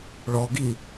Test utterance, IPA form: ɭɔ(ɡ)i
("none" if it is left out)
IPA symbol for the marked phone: ɡ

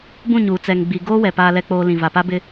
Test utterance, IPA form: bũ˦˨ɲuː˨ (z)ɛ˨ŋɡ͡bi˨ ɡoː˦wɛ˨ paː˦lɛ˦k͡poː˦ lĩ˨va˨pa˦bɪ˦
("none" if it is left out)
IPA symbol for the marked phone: t͡s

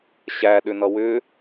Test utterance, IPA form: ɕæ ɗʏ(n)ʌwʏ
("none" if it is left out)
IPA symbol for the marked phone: n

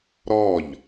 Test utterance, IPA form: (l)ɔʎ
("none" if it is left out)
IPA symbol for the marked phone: ɾ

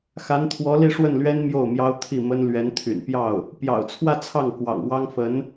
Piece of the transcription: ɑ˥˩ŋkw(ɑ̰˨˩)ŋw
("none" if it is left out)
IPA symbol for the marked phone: ɑ̰˨˩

